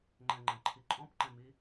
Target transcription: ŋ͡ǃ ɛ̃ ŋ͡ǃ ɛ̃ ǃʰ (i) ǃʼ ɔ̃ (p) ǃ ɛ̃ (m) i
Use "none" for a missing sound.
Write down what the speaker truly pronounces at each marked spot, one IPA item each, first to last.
i, p, m

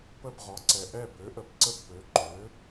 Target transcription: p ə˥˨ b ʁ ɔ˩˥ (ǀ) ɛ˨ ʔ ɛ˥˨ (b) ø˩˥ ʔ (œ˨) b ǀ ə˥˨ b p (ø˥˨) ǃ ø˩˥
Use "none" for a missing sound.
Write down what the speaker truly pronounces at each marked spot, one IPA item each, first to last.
ǀ, b, ə˨, ø˩˥

